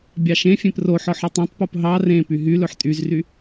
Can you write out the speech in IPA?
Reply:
bʲ ɑ ʃ ẽ fʲ ẽ p r o ħ ɔ ħ ɔ tˤ ẽ tˤ p u p ɦ ɑ r ẽ p y ɦ y l ɵ ħ tʼ y z r y

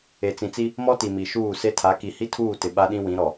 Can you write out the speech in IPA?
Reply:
e˨ t͡s ĩ˨ t͡s i˦ | m ɔ˦ t i˨ m i˨ ʃ uː˦˨ s e˦ tʰ a˨˦ k i˨ h i˦ tʰ uː˦˨ t ɪ˨ ɓ a˦ ɗ ĩ˦ w ĩ˨˦ ɾ ɔ˨

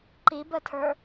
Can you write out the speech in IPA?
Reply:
ǃ i b ə tʰ ə˞

